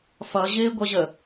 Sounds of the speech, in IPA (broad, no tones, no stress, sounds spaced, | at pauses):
f ʌ ʑ ɪː ɡʷ ʌ ʑ ə